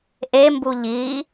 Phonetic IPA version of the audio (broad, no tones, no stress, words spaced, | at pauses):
ʔembu ʎi